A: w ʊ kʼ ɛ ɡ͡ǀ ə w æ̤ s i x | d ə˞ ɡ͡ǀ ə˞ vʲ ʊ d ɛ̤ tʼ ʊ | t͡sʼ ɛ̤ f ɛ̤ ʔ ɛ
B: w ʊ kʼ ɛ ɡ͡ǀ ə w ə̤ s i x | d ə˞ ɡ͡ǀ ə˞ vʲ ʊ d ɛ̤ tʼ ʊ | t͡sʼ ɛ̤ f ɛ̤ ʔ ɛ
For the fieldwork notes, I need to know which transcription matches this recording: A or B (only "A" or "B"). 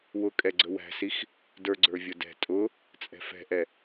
A